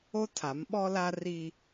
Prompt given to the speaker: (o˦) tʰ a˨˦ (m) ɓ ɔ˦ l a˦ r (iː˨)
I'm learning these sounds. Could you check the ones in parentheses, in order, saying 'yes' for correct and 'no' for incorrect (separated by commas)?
yes, yes, no